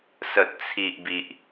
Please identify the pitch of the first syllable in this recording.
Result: low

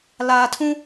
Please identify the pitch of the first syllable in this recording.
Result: low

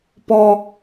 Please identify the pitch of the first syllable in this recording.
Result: high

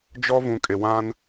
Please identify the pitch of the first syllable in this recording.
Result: high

